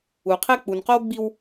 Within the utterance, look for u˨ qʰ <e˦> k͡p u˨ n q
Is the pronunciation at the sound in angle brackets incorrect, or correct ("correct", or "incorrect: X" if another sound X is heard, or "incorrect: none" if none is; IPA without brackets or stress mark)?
correct